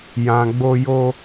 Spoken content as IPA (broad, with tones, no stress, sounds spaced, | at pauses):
j ã˨ ɡ͡b o˧ j o˧